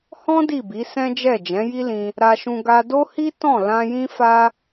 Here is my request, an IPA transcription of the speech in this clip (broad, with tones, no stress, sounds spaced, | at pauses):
h ɔ̃˦ d i˦˨ b i˨˦ s ɛ̃˦ d͡ʒ ɛ˦˨ d͡ʒ ɛ̃˨˦ j i˦ l ĩ˧ | ɾ a˧ ʃ ũ˧ ɡ a˧ d o˦ h i˦ t ɔ̃˦˨ l ã˧ j ĩ˦ f a˦